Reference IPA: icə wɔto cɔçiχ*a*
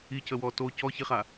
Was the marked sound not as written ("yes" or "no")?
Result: no